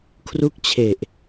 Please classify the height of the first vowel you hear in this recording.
high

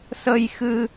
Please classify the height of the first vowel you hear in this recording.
mid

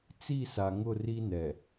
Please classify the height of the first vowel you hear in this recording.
high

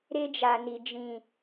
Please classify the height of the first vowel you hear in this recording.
mid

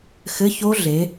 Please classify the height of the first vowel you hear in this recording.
mid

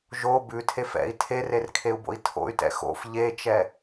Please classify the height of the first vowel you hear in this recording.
mid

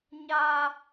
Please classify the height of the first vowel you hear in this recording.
low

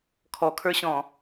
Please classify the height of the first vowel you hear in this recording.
mid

